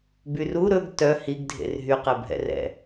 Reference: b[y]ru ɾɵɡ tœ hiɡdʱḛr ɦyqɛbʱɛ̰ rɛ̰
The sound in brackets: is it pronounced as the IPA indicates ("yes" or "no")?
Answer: yes